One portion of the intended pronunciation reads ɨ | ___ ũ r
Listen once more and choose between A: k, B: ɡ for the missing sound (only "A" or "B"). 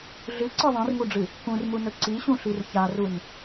A